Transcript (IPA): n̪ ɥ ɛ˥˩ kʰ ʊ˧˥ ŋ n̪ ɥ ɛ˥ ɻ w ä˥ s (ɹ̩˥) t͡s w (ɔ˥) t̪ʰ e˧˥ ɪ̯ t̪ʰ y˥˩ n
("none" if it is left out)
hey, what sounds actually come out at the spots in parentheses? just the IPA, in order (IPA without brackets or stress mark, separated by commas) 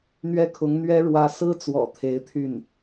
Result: ɹ̩˥, ɔ̰˨˩